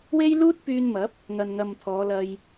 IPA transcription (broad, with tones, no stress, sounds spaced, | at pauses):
w e˥ j l uː˥ t̚ p yː˧ n m ɐ˨˥ p̚ | ŋ ɐ˨ n ŋ ɐ˨ m t̪ʰ ɔː˨˧ l ɐ˧ j